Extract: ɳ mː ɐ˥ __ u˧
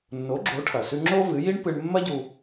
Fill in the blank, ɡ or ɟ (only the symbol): ɟ